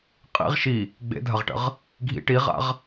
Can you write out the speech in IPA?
qʼḭʁ ʃi | ɡ͡bḛdʱɐʁʈə̰ʁ | ɡʱḭ ʈiʁa̰ʁ

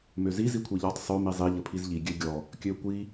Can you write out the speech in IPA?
møzi zikʷʰiʎɔtˤ sˤø mizˤi ʎəpʰizʎi ɡʲøɡʲɔ | kʲøkʷi

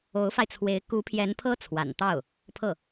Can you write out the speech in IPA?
o˧˥ʊ̯fa˧ɪ̯t͡sʰwe˧˥ɪ̯ ku˧˥pʰjɛ˧˥npʰɤ˥ t͡sʰwa̰˨˩n t̪ɑ˥˩ʊ̯ | pʰɤ˥˩

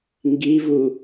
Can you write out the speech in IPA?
ŋɡivu

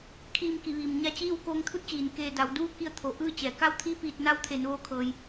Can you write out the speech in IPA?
kʰiː˧mki˩˧ʋiː˩m ɲa˧t͡ɕiː˥˨w koː˧ŋt̪ʰu˧˥t̚t͡ɕiː˩nkeː˧˩ da˩˧wduː˥˨ki˧ə̯t̪ʰo˩ ʔɯː˥˨t͡ɕɛː˩ ka˥˨wt̪ʰi˥˨piː˧˩t̚na˧˥w t̪ʰe˩˧nʋoː˧kʰɤː˩j

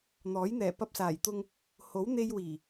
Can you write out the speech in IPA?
n̪ɔː˨˥j n̪ɛː˨˩pɐ˧p̚saː˨˩jt̪ʊ˧ŋ | ho˨˥wn̪e˧j wiː˨˩

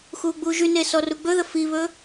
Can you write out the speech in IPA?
xuːɡ͡buːʒyne sɔruɡ͡bɵðə fiβɵ

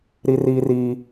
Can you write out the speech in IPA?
ɾi˦riː˦riː˦

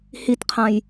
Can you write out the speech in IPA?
hitqʰãj

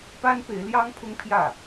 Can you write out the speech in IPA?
pa˥n pe˧˥ɪ̯ljɑ˥ŋpʰʊ˥ŋpʰjä˥˩

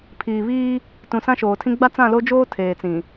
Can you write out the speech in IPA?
pʰiː˨βiː˦ | tũ˨sã˦ʃoː˨tʰĩ˦ ɡ͡ba˦t͡sã˦˨lo˦d͡ʒoː˦ tʰeː˨t͡sĩ˨

